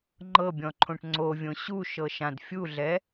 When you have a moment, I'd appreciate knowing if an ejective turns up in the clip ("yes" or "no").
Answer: no